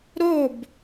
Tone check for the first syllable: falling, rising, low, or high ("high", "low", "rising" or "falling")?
falling